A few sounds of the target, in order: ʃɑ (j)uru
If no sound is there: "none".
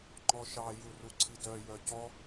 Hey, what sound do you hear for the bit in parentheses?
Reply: j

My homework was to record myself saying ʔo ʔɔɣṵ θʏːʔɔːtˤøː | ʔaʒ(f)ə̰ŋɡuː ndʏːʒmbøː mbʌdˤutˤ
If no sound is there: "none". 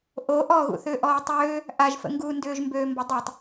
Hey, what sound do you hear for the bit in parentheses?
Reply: f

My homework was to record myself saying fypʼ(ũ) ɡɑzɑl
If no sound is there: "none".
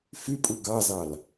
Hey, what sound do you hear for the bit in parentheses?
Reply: u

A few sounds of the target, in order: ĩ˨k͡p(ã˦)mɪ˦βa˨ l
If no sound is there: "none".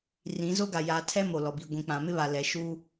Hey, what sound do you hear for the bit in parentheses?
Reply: ã˨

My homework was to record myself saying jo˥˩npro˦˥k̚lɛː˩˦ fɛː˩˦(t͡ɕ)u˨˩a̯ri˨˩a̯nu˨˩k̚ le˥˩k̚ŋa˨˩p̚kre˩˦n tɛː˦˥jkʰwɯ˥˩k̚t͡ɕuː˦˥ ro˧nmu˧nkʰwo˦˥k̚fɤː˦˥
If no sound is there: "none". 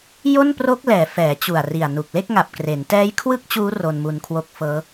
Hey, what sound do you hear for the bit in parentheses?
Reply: t͡ɕ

